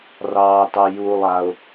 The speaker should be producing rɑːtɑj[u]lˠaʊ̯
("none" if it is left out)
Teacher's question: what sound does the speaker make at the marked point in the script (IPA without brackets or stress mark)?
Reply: u